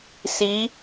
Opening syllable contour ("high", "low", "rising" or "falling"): rising